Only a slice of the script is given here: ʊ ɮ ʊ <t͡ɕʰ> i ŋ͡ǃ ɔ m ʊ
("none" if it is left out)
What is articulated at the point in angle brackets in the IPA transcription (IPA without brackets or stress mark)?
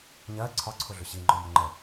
ɕ